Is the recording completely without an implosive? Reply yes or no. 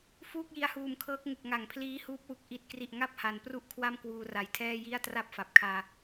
yes